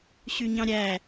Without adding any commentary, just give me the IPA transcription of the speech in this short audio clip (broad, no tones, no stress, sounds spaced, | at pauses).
ɕ y ɲ ɑ̃ ɾʲ æ